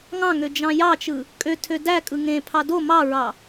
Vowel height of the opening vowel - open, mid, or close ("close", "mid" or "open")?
open